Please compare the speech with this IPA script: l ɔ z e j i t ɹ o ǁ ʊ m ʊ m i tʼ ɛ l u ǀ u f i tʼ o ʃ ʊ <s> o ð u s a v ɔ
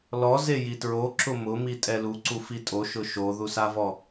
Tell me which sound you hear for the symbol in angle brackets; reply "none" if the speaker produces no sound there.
ʃ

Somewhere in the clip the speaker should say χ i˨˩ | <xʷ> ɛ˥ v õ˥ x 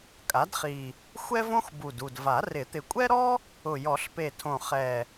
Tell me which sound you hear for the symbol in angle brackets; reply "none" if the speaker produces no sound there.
xʷ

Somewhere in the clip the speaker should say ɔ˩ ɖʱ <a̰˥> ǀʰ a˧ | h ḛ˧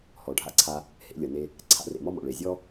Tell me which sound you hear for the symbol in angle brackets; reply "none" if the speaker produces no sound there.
a̰˧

